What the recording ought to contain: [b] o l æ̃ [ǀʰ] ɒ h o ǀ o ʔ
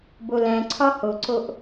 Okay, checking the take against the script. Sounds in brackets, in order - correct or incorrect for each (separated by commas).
correct, correct